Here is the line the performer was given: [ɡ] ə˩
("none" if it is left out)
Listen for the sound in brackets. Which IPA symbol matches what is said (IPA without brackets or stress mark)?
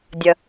dʲ